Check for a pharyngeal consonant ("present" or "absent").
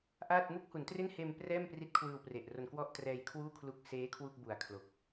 absent